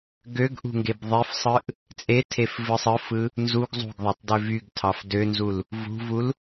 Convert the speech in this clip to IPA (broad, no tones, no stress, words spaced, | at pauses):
ɡøɡʔṳŋɡeb ðˤefsˤɯʔ | t͡sʼetʰefvɯsˤ ɯfɯ | nzuɡ zˤṳɡðˤɑtˤdø vyɡtʰɑf dønzul | vṳvul